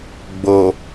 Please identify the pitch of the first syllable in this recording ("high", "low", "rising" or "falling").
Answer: low